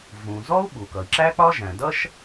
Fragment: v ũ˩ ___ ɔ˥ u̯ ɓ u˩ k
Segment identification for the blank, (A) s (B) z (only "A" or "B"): B